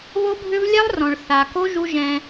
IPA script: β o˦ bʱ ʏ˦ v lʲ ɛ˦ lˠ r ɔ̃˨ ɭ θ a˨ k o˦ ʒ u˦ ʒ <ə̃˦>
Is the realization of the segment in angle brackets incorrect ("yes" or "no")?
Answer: yes